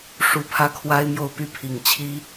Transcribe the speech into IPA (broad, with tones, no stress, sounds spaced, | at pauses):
ʂ u˧˥ pʰ ä˥ kʰ w a˥ ɪ̯ m j o˥˧ ʊ̯ p y˥˩ pʰ i˨˩ ŋ t͡ɕʰ i˥